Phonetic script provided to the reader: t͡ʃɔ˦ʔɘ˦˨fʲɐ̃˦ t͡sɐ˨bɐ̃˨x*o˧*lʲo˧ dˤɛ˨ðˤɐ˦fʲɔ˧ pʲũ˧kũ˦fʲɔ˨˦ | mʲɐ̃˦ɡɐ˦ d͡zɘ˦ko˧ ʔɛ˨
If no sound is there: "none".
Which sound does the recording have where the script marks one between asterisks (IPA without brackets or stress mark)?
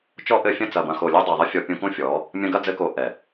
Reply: o˨